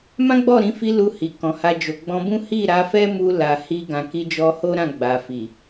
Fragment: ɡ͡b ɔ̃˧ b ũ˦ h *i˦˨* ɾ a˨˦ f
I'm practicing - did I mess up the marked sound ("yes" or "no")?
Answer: no